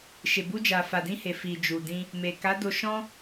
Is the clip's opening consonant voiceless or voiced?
voiceless